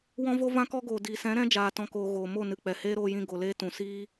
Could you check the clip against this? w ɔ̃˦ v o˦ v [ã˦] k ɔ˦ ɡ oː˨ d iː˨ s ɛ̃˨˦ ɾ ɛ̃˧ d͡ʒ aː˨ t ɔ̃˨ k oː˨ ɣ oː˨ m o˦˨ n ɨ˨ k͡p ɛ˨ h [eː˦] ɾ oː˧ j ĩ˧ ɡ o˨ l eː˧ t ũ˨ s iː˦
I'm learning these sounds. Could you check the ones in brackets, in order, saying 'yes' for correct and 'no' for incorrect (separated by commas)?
yes, yes